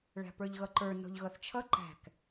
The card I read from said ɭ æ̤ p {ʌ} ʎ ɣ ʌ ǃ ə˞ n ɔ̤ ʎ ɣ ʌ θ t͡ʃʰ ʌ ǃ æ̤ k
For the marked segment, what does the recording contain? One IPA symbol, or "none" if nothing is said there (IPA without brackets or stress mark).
ə˞